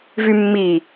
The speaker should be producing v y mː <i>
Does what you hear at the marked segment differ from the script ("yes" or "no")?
no